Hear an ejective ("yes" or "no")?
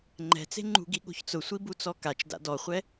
no